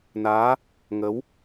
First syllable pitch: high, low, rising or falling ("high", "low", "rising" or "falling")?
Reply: rising